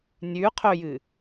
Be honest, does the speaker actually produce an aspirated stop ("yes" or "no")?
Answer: yes